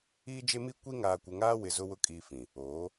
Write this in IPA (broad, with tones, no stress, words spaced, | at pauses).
iː˦d͡ʒe˦mi˦ kʷi˦ ŋaː˨kʷɪ˨ŋaː˦wɪ˨ zʊ˦wʊ˦ kʼiː˦fĩ˨ | oː˨˦